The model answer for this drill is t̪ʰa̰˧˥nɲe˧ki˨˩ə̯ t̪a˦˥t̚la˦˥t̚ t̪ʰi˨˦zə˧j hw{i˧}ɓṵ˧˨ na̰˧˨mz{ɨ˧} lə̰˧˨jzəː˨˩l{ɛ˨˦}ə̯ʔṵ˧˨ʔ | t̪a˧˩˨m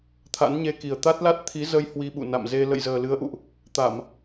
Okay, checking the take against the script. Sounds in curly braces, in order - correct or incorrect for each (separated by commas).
correct, incorrect, incorrect